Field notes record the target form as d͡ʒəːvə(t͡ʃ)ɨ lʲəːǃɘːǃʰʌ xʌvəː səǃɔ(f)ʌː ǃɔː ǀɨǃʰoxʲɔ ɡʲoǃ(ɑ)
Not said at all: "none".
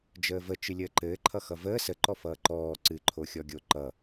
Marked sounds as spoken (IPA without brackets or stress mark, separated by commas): t͡ʃ, f, ʌ